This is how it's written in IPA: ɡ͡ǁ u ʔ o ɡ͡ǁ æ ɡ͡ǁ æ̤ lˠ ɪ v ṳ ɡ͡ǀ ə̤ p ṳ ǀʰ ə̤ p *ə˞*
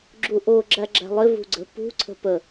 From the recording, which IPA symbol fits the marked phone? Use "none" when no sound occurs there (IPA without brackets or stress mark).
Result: ə